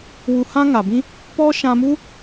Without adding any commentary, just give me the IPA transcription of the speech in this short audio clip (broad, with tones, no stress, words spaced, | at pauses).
wu˧ hã˦ŋa˨bĩ˦ | pɔ˦ʃã˧mu˦